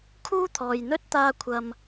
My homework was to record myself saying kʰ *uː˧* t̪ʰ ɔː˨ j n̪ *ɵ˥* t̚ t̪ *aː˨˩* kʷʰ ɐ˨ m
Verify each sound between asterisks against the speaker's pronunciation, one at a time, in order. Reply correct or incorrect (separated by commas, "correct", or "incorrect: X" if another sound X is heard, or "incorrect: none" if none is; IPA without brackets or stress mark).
incorrect: uː˥, correct, incorrect: aː˧